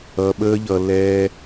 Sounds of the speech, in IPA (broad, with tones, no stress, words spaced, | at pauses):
ʌ˧ɓəː˦ʎʌ˧ lɛ˧